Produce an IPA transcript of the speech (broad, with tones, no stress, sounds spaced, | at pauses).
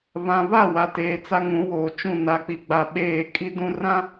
β ã˨ β a˦˨ w a˨ t eː˨ t͡s a˦ ŋ ũ˨˦ w oː˨ t͡ʃ ũ˦˨ n a˨ k͡p i˨ ɡ͡b a˨ ɓ eː˦˨ kʼ i˦ d ũ˦ r ã˦